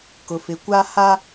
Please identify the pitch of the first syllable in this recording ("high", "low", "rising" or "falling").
low